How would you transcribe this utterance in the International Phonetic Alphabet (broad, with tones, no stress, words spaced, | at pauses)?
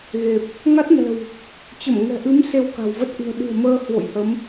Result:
ɣe˨˩p̚ | ŋa˦˥t̚nɛ̤˨˩w | t͡ɕə˧˩mŋɛ̤˨˩ʔɨ˨˦m se˧wka̤˨˩w və˦˥t̚ʔɨ̤˨˩ə̯ɗɨ̤˨˩ə̯ məː˧hwo̰˧˨jhə˨˦m